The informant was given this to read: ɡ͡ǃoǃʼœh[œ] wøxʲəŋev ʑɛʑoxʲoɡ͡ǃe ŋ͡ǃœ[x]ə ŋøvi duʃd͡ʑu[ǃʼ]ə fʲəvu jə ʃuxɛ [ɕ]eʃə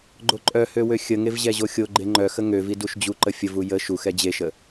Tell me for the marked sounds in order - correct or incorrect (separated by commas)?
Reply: incorrect, correct, incorrect, incorrect